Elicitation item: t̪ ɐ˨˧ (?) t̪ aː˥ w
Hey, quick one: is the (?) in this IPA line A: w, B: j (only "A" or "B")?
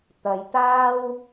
B